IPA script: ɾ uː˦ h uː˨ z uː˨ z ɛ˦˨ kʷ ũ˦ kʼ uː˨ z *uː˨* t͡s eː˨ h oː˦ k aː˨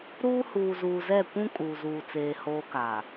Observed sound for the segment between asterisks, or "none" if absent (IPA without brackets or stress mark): uː˨